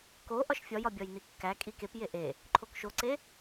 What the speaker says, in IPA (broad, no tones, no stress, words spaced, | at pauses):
ko ʔɒʃfʲɒjɒbʲɒj nikːæ kʼikep jeʔe | ǃʰokʃoǀe